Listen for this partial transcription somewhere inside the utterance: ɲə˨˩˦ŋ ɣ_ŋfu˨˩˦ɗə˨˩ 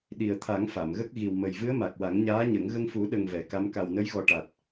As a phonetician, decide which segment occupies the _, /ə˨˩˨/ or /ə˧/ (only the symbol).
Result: ə˧